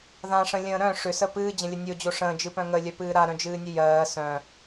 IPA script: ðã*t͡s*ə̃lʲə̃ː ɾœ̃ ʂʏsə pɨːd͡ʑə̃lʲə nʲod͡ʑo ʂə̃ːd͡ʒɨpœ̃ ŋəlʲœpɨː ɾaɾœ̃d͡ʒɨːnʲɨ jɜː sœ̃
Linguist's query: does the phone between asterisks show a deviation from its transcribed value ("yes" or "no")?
yes